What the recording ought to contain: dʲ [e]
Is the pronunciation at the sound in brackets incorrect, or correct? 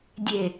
correct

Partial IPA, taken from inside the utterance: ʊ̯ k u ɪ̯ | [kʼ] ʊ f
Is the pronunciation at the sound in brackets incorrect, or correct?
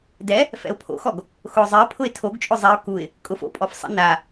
correct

